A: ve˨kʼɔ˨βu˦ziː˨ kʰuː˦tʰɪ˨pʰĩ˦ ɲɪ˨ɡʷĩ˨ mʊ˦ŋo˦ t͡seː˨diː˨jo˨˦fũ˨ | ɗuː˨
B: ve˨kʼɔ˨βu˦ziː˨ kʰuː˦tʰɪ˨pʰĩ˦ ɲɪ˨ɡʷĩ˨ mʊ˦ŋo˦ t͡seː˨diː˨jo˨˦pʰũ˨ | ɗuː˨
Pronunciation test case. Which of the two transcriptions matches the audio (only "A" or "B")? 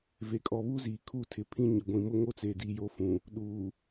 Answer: A